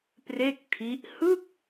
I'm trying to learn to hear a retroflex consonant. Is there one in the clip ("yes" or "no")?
no